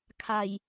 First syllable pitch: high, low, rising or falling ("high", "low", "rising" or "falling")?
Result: low